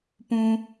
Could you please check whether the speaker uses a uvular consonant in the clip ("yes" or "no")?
no